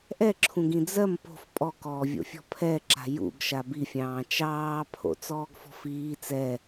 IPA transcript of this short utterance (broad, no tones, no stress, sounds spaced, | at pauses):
ʔ ɛ ǁʰ ũ ɡ ĩ d͡z ɜ m p o̤ f pʼ ɔ k ɔː vʲ o̰ fʲ ɔ̤ pʰ ɛ ǁ a̤ j ṵ ɡ ʃ a b i fʲ ɑ̃ː t͡ʃ ɑː pʰ o̰ t͡s ɔː ɡ f ɔ̤ f iː t͡s ɛ